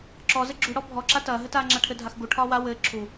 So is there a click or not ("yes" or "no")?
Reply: yes